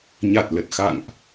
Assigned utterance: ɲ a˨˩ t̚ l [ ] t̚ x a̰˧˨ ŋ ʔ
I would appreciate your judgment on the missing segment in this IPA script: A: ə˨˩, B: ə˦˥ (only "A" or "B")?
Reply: A